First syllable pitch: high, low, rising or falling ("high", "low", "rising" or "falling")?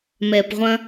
low